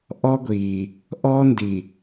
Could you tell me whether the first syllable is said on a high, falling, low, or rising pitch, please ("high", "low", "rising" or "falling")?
high